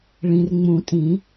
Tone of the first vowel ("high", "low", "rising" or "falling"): low